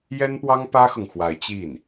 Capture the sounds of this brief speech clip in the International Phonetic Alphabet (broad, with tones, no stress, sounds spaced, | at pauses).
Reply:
j ɛ˥ n p w ɑ˥ ŋ p ä˥ x ɤ˨ ŋ x w a˧˥ ɪ̯ t͡ɕ i˥˩ n